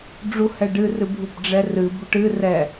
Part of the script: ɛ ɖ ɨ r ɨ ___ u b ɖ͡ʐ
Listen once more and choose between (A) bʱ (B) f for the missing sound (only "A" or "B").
A